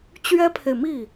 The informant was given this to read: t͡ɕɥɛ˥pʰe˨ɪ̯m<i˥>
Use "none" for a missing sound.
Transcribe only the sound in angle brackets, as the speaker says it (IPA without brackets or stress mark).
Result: i˥˩